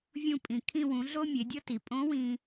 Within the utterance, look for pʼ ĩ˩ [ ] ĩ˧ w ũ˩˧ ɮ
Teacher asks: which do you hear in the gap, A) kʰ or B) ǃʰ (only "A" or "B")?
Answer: A